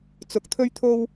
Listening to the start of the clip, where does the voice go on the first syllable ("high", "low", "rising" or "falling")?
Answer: low